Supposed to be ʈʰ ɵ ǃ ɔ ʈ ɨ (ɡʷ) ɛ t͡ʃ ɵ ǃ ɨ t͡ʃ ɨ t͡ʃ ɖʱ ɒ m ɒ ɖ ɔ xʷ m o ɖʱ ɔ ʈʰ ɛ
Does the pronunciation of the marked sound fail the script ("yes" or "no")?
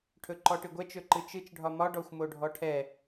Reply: no